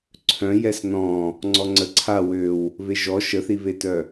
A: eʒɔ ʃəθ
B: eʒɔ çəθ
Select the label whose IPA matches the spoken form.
A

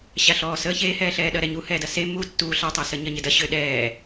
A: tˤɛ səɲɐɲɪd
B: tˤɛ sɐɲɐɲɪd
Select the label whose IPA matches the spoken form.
A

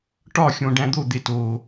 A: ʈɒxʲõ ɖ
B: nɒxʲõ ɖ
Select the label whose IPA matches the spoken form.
A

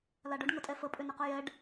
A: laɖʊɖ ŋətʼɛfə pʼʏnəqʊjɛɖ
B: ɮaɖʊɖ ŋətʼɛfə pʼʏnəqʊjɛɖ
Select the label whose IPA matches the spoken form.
A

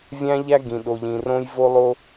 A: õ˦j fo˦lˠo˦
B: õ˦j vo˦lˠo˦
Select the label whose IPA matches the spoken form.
B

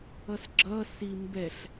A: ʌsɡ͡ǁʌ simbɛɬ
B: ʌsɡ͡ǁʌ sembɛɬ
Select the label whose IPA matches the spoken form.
A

